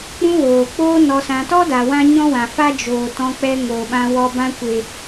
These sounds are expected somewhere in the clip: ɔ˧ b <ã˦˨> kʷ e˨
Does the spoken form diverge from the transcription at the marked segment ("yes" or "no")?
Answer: yes